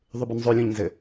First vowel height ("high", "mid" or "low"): high